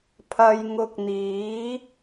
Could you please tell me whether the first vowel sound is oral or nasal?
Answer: oral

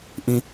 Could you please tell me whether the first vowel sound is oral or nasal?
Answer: nasal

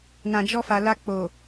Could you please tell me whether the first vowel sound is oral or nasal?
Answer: nasal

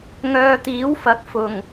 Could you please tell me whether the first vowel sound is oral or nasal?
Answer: oral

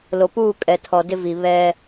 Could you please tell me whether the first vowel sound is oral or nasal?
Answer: oral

